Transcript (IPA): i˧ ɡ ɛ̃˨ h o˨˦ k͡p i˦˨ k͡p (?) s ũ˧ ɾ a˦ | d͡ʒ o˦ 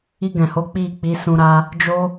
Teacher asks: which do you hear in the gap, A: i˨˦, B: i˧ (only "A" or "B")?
A